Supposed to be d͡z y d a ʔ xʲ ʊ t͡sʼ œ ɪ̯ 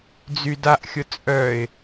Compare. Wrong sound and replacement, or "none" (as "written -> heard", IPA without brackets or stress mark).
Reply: none